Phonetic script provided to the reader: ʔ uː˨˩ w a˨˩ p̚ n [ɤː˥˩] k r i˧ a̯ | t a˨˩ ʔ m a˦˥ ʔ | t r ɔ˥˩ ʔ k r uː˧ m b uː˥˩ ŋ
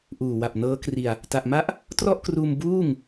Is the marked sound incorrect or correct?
incorrect